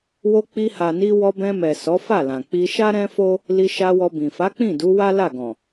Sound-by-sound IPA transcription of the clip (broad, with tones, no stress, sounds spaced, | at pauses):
w o˧ k͡p i˧ h a˨ n i˧ w ɔ˧ b ɛ̃˧ m ɛ˨ s ɔ˨˦ f a˦˨ l ã˨ k͡p i˧ ʃ a˦ ɾ ɛ̃˦ f o˦ | l i˧ ʃ a˧ w ɔ˧ b ĩ˨ f a˨˦ k͡p ĩ˦˨ d u˨˦ w a˦ l a˦˨ ɡ ɔ̃˨